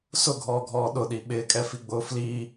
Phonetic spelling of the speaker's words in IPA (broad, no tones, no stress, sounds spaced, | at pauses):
s ʊ ɡʱ ɔː ɡʱ ɔː ɗ ʊ ɗ i ɓ ɪː kʼ ɛ f i ɡ͡b ʊː f l i